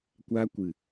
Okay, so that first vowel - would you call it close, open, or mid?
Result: open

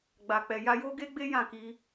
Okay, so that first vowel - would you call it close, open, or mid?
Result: open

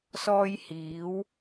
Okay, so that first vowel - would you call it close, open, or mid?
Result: mid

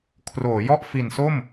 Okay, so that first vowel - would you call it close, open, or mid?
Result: mid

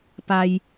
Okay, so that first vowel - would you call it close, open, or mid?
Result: open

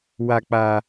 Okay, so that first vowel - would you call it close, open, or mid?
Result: open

